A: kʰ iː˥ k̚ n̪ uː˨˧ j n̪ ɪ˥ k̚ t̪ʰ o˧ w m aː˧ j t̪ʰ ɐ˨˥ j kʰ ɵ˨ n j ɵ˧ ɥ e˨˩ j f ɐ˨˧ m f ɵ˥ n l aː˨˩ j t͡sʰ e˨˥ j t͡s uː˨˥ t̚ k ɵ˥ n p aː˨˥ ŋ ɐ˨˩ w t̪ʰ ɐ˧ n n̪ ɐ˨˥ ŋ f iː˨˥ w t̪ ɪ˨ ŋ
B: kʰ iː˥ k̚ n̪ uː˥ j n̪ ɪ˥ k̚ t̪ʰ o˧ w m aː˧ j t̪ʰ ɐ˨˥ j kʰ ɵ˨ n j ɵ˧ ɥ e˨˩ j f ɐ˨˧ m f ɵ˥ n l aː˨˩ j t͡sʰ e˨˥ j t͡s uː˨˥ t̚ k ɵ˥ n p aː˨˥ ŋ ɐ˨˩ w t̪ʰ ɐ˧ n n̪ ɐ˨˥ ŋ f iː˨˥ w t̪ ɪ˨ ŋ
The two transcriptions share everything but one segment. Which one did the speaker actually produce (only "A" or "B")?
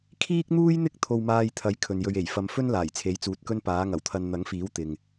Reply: B